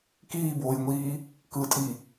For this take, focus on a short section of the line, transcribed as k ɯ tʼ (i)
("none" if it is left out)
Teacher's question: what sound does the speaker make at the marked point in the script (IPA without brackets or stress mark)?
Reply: i